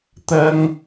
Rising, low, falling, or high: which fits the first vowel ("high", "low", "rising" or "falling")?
high